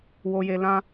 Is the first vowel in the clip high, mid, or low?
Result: mid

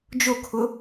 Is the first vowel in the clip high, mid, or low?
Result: mid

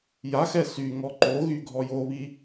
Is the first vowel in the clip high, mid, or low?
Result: low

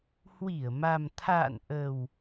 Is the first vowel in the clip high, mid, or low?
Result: high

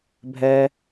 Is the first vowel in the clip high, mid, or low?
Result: mid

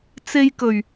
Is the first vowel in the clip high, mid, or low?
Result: mid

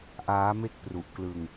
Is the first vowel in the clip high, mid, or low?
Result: low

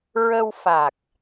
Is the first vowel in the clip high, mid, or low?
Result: mid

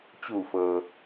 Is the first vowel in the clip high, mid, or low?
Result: high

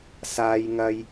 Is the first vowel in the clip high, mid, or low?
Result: low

